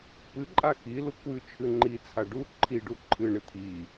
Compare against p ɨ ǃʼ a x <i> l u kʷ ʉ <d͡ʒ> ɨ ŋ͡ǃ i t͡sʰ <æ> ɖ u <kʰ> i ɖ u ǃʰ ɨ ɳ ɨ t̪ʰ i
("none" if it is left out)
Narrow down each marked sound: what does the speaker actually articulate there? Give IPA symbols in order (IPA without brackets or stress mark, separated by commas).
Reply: i, t͡ʃʰ, a, ǃʰ